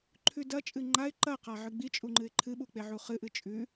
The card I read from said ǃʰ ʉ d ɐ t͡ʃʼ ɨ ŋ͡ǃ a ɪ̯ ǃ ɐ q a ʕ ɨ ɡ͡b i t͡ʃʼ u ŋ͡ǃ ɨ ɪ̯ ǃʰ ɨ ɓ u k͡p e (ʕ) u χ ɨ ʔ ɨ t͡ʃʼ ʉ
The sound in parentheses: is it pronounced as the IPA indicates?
yes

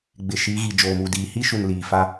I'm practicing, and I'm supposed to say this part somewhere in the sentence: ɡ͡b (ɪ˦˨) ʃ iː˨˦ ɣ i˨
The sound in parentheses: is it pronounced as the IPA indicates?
no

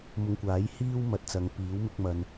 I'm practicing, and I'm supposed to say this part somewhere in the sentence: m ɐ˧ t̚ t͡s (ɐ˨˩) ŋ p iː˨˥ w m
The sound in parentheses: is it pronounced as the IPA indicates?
no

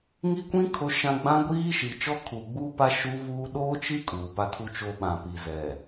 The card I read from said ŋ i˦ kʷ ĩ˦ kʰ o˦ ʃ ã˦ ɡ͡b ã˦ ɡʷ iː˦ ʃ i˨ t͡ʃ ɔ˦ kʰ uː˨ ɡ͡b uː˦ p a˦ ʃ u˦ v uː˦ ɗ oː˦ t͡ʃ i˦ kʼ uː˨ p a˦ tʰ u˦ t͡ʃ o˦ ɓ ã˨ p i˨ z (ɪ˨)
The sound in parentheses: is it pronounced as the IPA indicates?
no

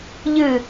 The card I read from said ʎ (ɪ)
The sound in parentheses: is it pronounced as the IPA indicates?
no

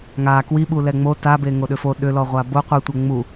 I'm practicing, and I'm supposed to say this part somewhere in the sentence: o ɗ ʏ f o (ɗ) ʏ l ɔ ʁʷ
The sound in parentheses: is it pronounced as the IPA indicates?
yes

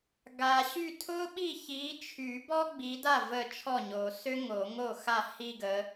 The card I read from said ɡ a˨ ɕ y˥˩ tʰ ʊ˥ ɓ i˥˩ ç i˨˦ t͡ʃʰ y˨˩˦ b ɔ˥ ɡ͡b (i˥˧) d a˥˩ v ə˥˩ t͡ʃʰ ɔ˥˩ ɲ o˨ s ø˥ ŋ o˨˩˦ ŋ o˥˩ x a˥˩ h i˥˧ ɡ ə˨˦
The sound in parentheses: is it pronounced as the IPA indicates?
no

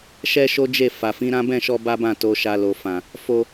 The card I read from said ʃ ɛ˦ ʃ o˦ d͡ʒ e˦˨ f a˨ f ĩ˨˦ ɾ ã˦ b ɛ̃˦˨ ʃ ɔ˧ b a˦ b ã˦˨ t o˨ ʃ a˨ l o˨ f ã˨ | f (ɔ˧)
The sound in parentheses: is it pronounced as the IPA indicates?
no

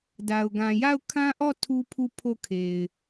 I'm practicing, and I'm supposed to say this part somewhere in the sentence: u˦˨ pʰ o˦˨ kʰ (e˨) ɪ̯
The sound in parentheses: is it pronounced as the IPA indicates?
yes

